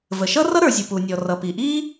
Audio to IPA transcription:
v ə˩ ʃ ʌ˥ r ʌ˥ ɾ ə˞˩ zʲ u˩ p u˩ nʲ ɔ˩ r ʌ˩ p i˩ ʔ i˥

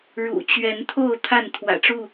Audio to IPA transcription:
ɻ ṵ˨˩ t͡ɕ ɥ ɛ˨˦ n t̪ʰ o˥˨ ʊ̯ t̪ʰ a˥˨ n t̪ʰ w ä̰˨˩ ʈ͡ʂ u˥˨

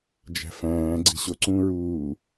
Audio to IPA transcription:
d͡ʒ æ̤ f æ̃ː ɡ͡ǀ i̤ ɕ o ǀ ũ ɹ uː

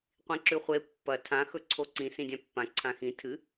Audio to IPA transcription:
qʷ ĩ ǁ ʉ χʷ e pː ɐ tʰ ã x ɵ ǀʰ o ǀ ĩ s ĩ dʲ ã pː ã ǀʰ ã x ĩ tʰ ɨ

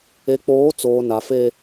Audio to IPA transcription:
e˨ k͡p oː˨˦ t͡s oː˨ n a˨ f e˦

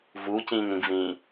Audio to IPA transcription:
v uː c ĩː ŋ ɾ ĩ ɡ v ĩː

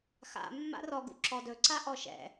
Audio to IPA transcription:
x a̰ mː a̰ r ɔ ɡ ṵ ǁ ɔ d ɵ ǀ a ʔ ɔ ʃ ɛ̰

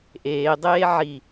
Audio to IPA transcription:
ʔ eː dˤ eː ʕ i

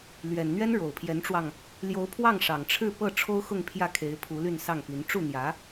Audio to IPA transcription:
l ɥ ɛ˨˩ n n̪ ɥ ɛ˥ n ɻ o˨˩ ʊ̯ pʰ j ɛ˧˥ n ʈ͡ʂ w ɑ˧ ŋ | l j o˧˥ ʊ̯ pʰ w ɑ˥˩ ŋ ʂ ɑ˨˩ ŋ ʈ͡ʂʰ ɻ̩˥˧ p ɤ˥˩ ʈ͡ʂʰ o˥ ʊ̯ x ʊ˥˧ ŋ pʰ j ä˥˩ kʰ e˧˥ ɪ̯ pʰ u˧˥ l y˥˧ n s ɑ˥˩ ŋ p i˧˥ n ʈ͡ʂ u˥˩ n̪ j ä˧˥

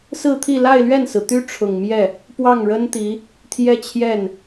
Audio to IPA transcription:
s ɹ̩˥˧ t̪ʰ i˥˧ l a˥˧ ɪ̯ l ɥ ɛ˥˩ n s ɹ̩˩ t̪ y˥ ʈ͡ʂʰ ʊ˨˩ ŋ m j ɛ˥˩ | p w ɑ˥˩ ŋ ɻ ə˥ n t̪ i˧˥ | t̪ʰ j ɛ˥ t͡ɕʰ j ɛ˥˩ n

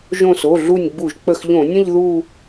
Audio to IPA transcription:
ʒ õ˧˩ s o˩˧˩ ɮ u˧˩ nʲ ɡ͡b u˧˩˧ ʒ k͡p ə˧˩ x ʎ õ˧˩˧ nʲ ə̃˥˧ ʎ ð u˥˧

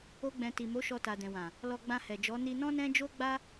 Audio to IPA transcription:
o˦ ɡ͡b ɛ̃˧ t i˨ m o˨˦ ʃ ɔ˧ t a˨ d ɛ̃˨ w ã˨ | l ɔ˧ ɡ͡b ã˧ h ɛ˨ d͡ʒ ɔ˨˦ n i˧ n ɔ̃˦ n ɛ̃˦ d͡ʒ o˦ ɡ͡b a˦

